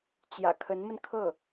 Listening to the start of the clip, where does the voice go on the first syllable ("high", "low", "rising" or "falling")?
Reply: low